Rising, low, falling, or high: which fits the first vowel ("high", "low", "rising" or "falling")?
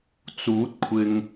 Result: rising